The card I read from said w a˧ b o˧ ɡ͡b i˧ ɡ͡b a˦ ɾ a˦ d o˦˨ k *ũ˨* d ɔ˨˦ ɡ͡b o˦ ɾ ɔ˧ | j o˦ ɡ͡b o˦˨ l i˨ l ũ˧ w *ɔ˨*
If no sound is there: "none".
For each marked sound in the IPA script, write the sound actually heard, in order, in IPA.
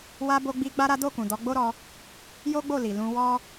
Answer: ũ˨, ɔ˦

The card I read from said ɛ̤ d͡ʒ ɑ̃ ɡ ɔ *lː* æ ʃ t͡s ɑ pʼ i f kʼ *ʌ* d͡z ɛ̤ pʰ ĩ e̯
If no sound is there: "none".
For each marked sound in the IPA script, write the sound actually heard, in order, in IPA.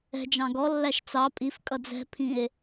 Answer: lː, ʌ

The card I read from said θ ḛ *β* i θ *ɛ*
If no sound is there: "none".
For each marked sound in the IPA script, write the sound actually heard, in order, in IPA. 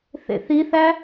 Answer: θ, æ

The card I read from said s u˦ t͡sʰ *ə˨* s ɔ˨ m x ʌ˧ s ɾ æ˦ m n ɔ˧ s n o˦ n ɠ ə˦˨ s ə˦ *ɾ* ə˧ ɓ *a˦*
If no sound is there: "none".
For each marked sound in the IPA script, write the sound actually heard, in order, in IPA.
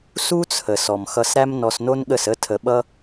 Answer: ə˨, tʰ, ʌ˦

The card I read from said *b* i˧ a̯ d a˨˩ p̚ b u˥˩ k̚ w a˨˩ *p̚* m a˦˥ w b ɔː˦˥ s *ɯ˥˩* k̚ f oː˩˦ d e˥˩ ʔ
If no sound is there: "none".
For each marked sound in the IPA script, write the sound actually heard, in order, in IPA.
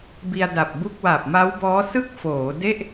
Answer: b, p̚, ɯ˥˩

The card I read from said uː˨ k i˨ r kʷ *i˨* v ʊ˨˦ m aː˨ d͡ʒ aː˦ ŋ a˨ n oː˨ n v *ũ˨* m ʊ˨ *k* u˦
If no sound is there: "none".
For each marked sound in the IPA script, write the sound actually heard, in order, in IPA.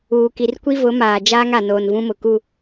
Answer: i˦, ũ˦, k

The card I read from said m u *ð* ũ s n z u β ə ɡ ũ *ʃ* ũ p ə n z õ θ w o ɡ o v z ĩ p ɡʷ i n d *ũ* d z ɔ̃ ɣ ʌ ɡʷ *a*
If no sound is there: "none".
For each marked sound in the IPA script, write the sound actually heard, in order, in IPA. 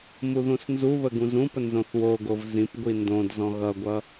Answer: ð, z, õ, ʌ

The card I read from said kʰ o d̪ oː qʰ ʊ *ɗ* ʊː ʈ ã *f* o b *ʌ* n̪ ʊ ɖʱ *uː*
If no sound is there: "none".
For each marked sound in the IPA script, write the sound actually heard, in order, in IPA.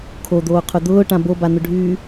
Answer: d̪, b, a, yː

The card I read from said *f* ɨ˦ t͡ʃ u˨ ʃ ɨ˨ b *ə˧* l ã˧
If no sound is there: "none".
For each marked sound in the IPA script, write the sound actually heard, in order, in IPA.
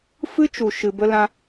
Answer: f, ə˧

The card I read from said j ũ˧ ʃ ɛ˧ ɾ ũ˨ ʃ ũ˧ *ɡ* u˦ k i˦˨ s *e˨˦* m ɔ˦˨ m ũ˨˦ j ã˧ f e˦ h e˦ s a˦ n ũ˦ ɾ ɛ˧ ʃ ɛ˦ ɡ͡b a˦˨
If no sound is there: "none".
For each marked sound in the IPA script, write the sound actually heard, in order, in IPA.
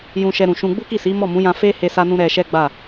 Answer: ɡ͡b, i˨˦

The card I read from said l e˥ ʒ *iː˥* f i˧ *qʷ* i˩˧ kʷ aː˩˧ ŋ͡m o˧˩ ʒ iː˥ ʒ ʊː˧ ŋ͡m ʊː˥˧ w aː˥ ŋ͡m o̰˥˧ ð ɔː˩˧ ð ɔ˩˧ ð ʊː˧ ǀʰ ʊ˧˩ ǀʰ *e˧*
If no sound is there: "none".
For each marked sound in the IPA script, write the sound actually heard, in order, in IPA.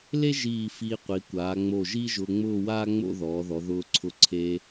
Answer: iː˧˩, qʷ, eː˧

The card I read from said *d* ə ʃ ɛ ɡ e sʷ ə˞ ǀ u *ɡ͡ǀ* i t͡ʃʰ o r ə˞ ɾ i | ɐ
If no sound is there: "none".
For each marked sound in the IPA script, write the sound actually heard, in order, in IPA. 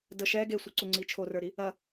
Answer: d, ŋ͡ǀ

